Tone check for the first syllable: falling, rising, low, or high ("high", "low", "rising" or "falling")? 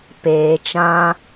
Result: low